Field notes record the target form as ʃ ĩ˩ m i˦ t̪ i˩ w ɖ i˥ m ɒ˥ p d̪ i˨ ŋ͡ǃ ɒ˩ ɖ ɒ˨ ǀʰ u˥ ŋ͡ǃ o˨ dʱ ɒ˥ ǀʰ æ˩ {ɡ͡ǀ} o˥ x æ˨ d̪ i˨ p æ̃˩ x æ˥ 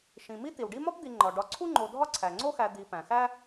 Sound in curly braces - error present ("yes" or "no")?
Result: yes